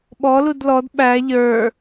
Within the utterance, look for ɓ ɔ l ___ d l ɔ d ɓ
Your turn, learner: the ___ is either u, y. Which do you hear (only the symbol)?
u